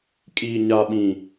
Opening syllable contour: low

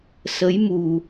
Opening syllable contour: rising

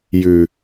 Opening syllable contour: low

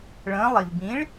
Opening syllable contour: rising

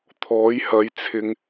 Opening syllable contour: rising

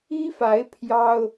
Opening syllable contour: high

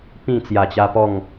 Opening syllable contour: falling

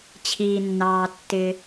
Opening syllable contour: low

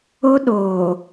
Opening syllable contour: high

